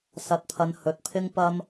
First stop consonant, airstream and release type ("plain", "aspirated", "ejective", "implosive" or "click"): plain